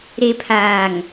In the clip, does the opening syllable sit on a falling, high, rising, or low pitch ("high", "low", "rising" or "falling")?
low